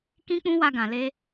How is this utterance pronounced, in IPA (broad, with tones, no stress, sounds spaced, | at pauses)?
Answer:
k ĩ˦ k͡p ũ˦ w a˧ ɡ ã˨ l e˧